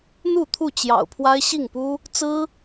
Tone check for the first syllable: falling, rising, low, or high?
falling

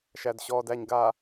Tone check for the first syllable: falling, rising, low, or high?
low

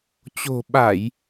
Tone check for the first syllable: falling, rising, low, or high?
low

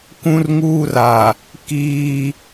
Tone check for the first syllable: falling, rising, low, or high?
high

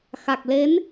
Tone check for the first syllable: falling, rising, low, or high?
low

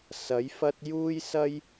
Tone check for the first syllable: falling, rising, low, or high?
rising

